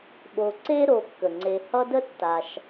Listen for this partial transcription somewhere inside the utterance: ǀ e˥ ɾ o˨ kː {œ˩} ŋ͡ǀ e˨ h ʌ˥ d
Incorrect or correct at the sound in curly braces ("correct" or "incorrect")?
incorrect